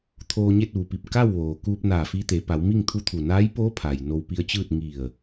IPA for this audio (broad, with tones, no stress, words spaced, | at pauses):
t̪ʰoː˧ɲe˥˨t̚ʋu˩pi˧˩p̚ ka˥˨wʋoː˩ kuː˧p̚naː˧˩fi˧ t̪e˩˧pa˩˧wmi˥˨ŋt̪ʰu˥˨ t̪ʰu˧˩naː˧˥jpoː˧˥ pʰa˩jno˧wpi˧ə̯t͡ɕɯː˥˨t̚ ŋi˧˩ə̯